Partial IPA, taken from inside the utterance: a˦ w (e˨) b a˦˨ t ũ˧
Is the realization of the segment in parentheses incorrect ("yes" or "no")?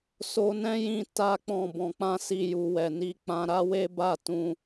yes